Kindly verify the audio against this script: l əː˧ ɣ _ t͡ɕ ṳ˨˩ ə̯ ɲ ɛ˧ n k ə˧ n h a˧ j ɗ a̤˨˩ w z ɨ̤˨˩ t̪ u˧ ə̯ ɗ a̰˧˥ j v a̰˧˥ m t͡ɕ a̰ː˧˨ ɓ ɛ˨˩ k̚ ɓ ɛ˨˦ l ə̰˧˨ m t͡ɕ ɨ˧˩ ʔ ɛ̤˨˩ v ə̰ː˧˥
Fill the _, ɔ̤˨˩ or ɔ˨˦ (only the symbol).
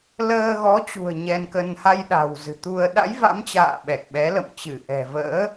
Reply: ɔ˨˦